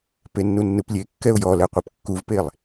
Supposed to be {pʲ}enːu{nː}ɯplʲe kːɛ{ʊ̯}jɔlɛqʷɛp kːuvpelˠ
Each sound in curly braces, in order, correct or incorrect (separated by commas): incorrect, correct, correct